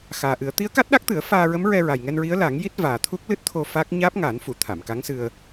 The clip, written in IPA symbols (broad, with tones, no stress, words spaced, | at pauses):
xaː˨˩ʔɨ˨˩˦ə̯ t̪i˧˥ə̯ka˦˥t̚ɗa˦˥k̚t̪ɨ˨˩˦ə̯ faː˧ɹə˧˥m ɹɛ˧ɹa˨˩jŋɛ˧nɹi˧˥ə̯ la˨˩˦ŋ ji˦˥t̚vaː˨˩t̪ʰu˦˥k̚ lɨ˦˥t̚t̪ʰo˧ fa˦˥k̚ ɲaː˦˥p̚ŋaː˨˩˦nfu˨˩˨ t̪ʰa˨˩˨mka˧˥ŋsɨ˧ə̯